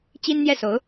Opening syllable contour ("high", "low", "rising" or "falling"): high